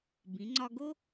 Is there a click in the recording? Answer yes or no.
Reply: yes